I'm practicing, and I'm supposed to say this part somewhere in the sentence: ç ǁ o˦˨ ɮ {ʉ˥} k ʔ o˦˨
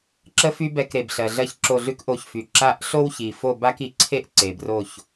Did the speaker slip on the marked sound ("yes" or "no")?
no